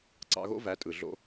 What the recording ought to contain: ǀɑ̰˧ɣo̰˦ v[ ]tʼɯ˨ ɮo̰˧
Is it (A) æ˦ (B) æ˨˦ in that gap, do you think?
B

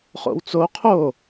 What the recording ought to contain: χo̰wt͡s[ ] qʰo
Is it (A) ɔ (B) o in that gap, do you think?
B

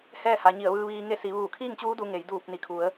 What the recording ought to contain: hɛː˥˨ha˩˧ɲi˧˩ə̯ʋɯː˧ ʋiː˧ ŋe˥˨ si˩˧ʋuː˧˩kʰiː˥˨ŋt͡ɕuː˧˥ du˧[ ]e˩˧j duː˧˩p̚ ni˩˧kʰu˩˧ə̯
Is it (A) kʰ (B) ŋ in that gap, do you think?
B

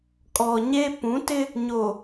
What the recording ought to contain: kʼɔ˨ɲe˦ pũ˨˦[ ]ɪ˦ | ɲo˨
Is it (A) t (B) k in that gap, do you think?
A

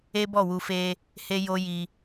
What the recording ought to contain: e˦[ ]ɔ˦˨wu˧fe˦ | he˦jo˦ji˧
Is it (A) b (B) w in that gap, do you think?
A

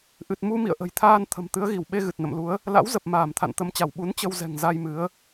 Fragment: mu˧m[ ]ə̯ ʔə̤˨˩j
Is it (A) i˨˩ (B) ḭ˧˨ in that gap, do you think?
B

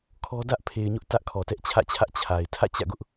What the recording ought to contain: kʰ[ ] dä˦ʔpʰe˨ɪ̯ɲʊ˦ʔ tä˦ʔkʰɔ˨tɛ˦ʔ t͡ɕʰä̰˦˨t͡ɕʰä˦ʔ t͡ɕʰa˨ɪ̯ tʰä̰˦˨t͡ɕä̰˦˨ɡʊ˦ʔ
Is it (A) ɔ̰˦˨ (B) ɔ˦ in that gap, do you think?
B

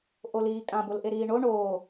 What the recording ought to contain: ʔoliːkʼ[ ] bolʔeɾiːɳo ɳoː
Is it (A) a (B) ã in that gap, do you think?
B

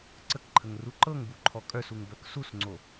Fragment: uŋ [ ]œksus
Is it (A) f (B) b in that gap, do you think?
B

